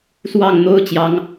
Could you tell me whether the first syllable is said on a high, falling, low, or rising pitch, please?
falling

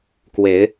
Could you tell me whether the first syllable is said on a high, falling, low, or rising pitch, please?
rising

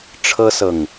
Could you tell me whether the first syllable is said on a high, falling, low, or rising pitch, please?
high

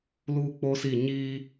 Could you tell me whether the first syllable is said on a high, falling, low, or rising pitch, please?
high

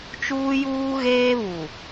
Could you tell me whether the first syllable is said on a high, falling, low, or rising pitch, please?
high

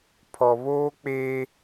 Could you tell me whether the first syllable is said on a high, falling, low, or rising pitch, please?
low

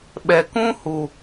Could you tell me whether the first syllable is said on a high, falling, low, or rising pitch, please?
low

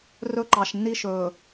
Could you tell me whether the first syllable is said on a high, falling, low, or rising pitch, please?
high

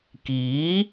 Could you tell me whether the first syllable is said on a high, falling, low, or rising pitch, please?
rising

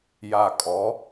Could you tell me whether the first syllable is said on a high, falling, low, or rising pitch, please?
low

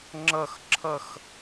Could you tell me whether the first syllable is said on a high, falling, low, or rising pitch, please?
falling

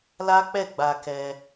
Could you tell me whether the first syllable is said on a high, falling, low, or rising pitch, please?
high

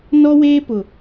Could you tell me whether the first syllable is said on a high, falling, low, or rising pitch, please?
high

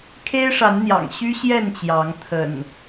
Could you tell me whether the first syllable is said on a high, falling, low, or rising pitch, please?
high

